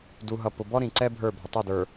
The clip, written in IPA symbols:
d u˨ ɦ ʌ˨ p ʊ˨ b ɔ˦ ɾ ĩ˨ ǀ ɛ˦ bʱ ə˞˦˨ bʱ ə˨ tˤ u˦˨ d ə˞˨

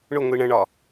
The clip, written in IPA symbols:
ɳ ʊ ŋʷ i ɳ ə̃ ɳ ɒ

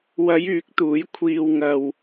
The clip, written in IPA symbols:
w ɐ˨˧ j yː˨˥ k̚ t̪ uː˨˥ j kʷʰ iː˨ w ŋ ɐ˨ w

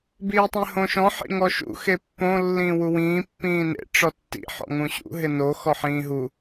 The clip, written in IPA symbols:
b iː tˤ ĩ h õ ʃ ɔ̃ ħ ḭ ŋ ɔ ʃ ṵ x e pː õ lː ĩː w u w ĩː pː ĩː n ḛ ʈ͡ʂ ɔ tː ḭ ħ ɔ̰ ŋ ũ ɕ ṵ ɦ ɪ n o x ɔ ħ ĩː ɦ u

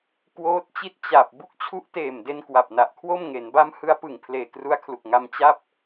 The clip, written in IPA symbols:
k w oː˦˥ t̚ t͡ɕ i˥˩ t̚ t͡ɕ a˨˩ p̚ b u˥˩ k̚ t͡ɕʰ u˦˥ ʔ t eː˨˩ m d e˧ n k w a˨˩ p̚ n a˨˩ ʔ kʰ w o˥˩ m ŋ e˩˦ n b a˦˥ m h ɯ˦˥ a̯ p ɯ˨˩ ŋ pʰ l eː˨˩ k r u˧ a̯ kʰ l u˨˩ k̚ ŋ a˧ m t͡ɕ a˥˩ p̚

